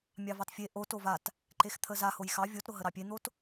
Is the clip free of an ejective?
yes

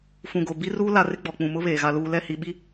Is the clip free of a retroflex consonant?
yes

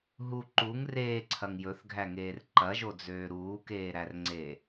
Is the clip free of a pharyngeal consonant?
yes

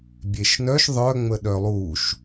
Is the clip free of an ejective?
yes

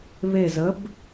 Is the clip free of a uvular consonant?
yes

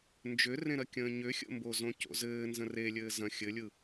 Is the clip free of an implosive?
yes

